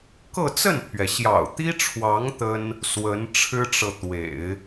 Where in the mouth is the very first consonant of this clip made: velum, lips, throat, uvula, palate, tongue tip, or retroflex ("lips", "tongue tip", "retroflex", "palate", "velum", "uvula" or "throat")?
velum